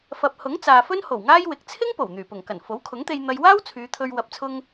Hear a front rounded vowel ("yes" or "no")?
yes